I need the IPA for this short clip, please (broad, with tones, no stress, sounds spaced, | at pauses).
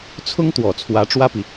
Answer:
t͡sʰ ʊ˥ ŋ t̪ w ɔ˨˩ t͡sʰ w ä˧˥ ʈ͡ʂ w ä˥ p i˨